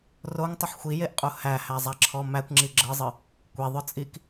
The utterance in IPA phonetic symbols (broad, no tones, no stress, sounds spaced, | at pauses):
r o ŋ tˤ ʊ ħ xʷ i j e ʔ qʼ u h æ h æ zˤ æ ǁʰ ɔ m æ kʷ ŋ͡ǁ i ɡ͡ǁ ɤ zˤ ɨ | kʷ e ðˤ ʊ t͡sʼ i k